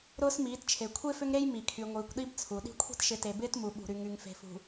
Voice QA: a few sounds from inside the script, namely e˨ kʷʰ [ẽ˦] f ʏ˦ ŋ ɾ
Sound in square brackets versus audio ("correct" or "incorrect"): incorrect